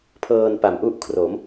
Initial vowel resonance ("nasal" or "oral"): oral